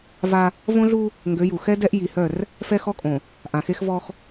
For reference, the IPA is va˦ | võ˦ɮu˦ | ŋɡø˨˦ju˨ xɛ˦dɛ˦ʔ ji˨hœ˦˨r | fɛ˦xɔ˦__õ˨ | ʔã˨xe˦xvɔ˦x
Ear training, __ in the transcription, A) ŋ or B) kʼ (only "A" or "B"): B